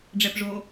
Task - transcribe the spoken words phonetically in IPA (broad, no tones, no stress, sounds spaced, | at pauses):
ɖ͡ʐ ɛ p ʐ o